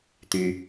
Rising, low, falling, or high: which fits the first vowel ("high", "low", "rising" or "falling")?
low